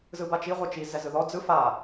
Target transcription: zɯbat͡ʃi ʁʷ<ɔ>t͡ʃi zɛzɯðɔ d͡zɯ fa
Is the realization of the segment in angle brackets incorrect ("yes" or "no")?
yes